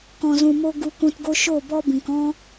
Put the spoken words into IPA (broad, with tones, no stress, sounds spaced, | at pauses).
k ɔ̃˨ z ũ˨ m o˧ ɡ u˧ k ũ˧ t ɡ o˦ ʃ o˦˨ b ɔ˦ b ĩ˨ k ɔ̃˦